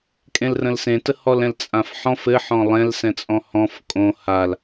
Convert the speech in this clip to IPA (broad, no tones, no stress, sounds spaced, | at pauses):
kʼ ẽ l r ə̃ l s ẽ t ə h ɔ l ɛ̃ l t͡sʼ ã f ħ ɔ̃ f ɘ ħ ɔ̃ lˠ ɛ̃ l s ɛ̃ t͡sʼ ɔ̃ h ɔ̃ f kʼ õ h a l